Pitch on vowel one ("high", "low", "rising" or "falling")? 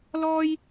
high